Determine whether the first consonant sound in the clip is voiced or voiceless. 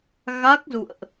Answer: voiced